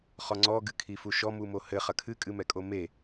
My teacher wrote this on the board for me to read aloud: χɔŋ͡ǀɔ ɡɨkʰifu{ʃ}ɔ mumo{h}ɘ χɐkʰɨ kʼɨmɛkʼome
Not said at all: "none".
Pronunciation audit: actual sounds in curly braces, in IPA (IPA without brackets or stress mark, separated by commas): ʃ, h